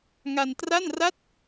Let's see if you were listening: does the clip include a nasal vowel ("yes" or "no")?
no